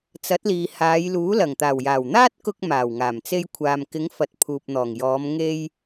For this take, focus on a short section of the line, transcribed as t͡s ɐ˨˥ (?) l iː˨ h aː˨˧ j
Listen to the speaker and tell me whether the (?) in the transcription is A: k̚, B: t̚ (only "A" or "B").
B